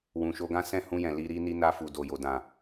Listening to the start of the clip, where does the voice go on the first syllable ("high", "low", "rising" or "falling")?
low